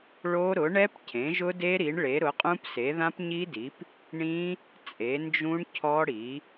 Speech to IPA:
ɭo˦˥ ɾʊ˩˥ɳɛ˦˥pcʰẽ˩˥ ʒʊ˦˥de˦˥ɾi˩˥ɳ ɭe˩˥ɾʊ˩˥qʼũ˦˥p se˩˥ðã˦˥pɲi˦˥di˩˥p | ɳĩ˦˥ | t͡sʼe˩˥nd͡ʒũ˦˥ɳcʰɔ˦˥ɽi˩˥

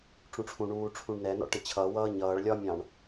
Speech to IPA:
ʈ͡ʂũʈ͡ʂʰũɳuː ʈ͡ʂʰũɳnɛnɔ̰ ʈɪt͡ɕʰʌwʌː ɲʌːɭlʲɒmʲɑ̃ɳ

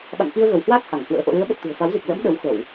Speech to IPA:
ɓa̰˧˨ŋki˧ə̯ɣə˧˩whwaː˦˥k̚ ha˧˩ŋhwə̰ː˧˥ ʔo̰˧˨lɨ˨˦ə̯ɓə˨˩t̚ t̪ṳ˨˩ə̯fa˨˦wzi˨˩k̚ lə̰˧˥m ɗə˨˦wxə˧˩˨w

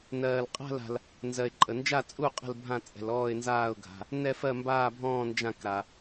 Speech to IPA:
nɜː˨lqʼa̤˥˧la̤˨l | nzɜ˨ɪ̯ǃʼə˨nd͡ʒa˥˧t͡sʼu˥˧ qʼə̤˥˧lbʱã˥˧ t͡sʼɛ̤˨lɔː˥˧ɪ̯nzaː˥˧ʊ̯ɡʱa̤˨ | nɛ˥˧ fɜ˥˧mbaː˥˧bʱɔ̃ː˥˧ nd͡ʒã˥˧kɾa˨

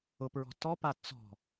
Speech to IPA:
ʊpɹɔ̤ tɔpa t͡sɔ̤

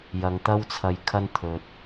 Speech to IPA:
jɐ˨ŋt̪ɐ˥wt͡sʰɐ˧jkʰɐ˥n t̪ʰɵ˨t̚

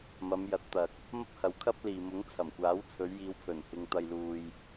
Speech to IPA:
mɐ˨˧mjɐ˨˥t̚t̪ɐ˨k̚ | mɐ˥p̚hɐ˨˥wkʰɐ˥p̚liː˨ mʊ˨˥ŋt͡sʰɐ˨˩mkʷaː˨˥w t͡sʰɵ˨˧ɥjiː˨˧wpʰɵ˨˩n hɪ˨ŋt̪ɐ˨jluː˨j

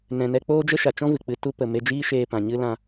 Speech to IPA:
nɛ̃˧ nɛ˧k͡poː˦d͡ʒə˦ʃa˨ t͡ʃɔ̃˦vɨ˨k͡pɨ˧ tu˧pə˨ me˧d͡ʒiː˦ʃeː˧ pã˨ ɲɨ˦ lã˧

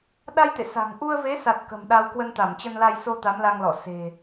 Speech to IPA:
ɗa˧jt̪ḛ˧˨ sa̤˨˩ŋ ʔu˧ə̯ve˨˦sa˨˩t̚ kə̤˨˩mɗa˧w kwə˧nt̪a˧˩mt͡ɕə˧nla˧j so˧ t̪a˨˦mla˧ŋlɔ̰˧˨ se̤˨˩

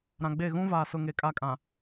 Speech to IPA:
ɾã˨ɡ͡be˦˨ ɣũ˦vaː˨sʊ˨ŋe˨ kʼa˦˨kʼã˨

